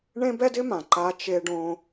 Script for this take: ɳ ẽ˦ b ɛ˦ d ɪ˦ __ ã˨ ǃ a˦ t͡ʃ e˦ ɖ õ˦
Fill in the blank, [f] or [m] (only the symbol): m